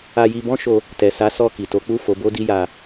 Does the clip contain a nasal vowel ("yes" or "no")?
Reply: yes